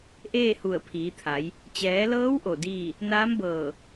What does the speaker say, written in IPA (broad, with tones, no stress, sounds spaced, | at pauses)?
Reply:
ʔ eː˥˨ h u˧˩ ə̯ pʰ iː˩˧ t̪ʰ a˩˧ j | t͡ɕ ɛː˩˧ l ɤː˧˥ w ʔ o˧˩ d iː˥˨ | n aː˧˥ m b ɤː˧˩